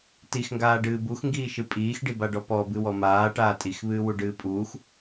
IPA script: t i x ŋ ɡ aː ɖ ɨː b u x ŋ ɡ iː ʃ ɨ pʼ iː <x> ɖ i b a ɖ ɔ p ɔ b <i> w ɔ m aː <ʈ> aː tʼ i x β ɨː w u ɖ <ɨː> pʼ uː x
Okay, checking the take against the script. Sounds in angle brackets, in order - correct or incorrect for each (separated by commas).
correct, incorrect, correct, correct